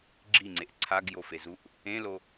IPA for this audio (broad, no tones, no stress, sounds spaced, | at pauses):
ɡ͡ǁ i ŋ͡ǀ e ʔ ǀʰ a ɡ j o f e z u ʔ | ẽ l o